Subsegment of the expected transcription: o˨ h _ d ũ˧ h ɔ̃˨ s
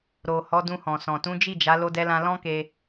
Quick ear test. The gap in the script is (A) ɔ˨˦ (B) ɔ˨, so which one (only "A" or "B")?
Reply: A